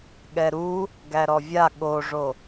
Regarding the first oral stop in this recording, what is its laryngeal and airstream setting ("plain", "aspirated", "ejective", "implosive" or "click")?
implosive